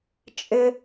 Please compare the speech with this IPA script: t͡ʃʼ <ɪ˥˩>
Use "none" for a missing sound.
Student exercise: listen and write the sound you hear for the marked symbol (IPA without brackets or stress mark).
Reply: ɪ˦